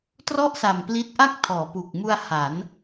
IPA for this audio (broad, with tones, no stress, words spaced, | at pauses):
trɔ˥˩ʔsa˨˩m pli˦˥t̚ʔa˥˩k̚ tʰɔː˩˦pu˨˩k̚mu˧a̯ ha˩˦n